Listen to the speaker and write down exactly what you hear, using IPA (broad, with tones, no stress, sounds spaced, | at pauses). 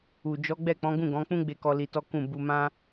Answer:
u˨ d͡ʒ ɔ˨˦ ɡ͡b ɛ˦˨ k͡p ɔ̃˨˦ ɡ ũ˦˨ ɡ ɔ̃˨˦ k͡p ũ˦ ɡ͡b e˦˨ k ɔ˧ l i˧ t ɔ˦ k ũ˦˨ b u˧ m ã˦